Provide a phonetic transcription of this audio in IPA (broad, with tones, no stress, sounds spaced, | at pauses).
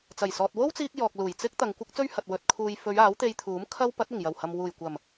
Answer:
t͡s ɐ˨˩ j s ɔː˨ t̚ w o˥ w t͡s iː˧ k̚ j ɔː˨ k̚ l uː˨˩ j t͡s ɪ˥ k̚ t̪ ɐ˨ ŋ kʷ ɪ˥ k̚ t͡s ɵ˥ ɥ h ɐ˨ t̚ w ɵ˨ t̚ kʰ uː˨ j f ɵ˨˧ ɥ aː˨˥ w t̪ e˧ j t̪ʰ uː˨˥ m kʰ ɐ˧ w p ɐ˨˥ t̚ ɪ˨˩ ŋ j ɐ˨˩ w h ɐ˨ m w uː˨˩ j kʷ ɐ˨˩ m